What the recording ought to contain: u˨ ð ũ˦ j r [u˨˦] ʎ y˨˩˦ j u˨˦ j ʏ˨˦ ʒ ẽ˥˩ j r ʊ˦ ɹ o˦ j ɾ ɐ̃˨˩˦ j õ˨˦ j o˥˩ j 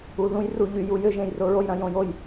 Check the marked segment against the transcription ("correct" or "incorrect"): incorrect